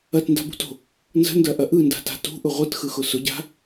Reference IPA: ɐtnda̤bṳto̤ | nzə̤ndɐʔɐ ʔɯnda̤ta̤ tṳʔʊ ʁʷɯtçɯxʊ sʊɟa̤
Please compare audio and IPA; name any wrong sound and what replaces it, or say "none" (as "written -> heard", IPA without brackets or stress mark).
ç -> x